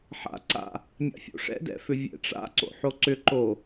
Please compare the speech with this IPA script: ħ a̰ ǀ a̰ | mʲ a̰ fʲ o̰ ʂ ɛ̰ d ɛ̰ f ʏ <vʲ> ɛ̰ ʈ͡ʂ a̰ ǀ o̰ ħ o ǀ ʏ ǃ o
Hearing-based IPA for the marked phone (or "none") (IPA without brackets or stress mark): vʲ